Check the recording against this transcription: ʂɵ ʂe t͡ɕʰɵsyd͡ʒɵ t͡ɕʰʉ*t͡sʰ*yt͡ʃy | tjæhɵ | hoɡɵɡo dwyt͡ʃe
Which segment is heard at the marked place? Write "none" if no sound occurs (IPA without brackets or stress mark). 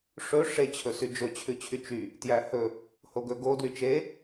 t͡ɕʰ